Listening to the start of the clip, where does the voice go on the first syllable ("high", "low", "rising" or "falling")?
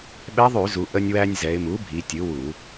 rising